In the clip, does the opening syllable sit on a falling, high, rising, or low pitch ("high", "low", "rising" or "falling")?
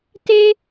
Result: high